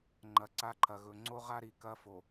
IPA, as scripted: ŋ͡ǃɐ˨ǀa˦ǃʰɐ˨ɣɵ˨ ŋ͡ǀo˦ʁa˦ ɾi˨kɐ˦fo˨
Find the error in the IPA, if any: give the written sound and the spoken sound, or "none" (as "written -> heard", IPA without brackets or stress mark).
none